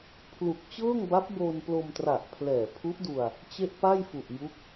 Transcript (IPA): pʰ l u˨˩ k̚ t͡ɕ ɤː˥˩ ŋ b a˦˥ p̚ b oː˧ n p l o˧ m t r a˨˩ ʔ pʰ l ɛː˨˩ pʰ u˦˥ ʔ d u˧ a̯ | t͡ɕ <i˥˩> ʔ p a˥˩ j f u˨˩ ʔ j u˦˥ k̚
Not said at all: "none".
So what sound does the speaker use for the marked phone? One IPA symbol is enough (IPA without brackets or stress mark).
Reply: e˥˩